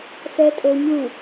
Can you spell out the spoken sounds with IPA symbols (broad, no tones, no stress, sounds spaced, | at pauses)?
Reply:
s ɛ tʼ o ɲ u